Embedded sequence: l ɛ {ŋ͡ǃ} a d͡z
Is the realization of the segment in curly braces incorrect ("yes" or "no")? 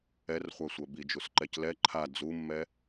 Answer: yes